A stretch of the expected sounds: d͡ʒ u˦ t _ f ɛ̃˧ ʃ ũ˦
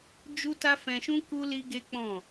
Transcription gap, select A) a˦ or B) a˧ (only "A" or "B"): A